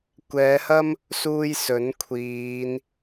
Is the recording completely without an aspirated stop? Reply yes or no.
no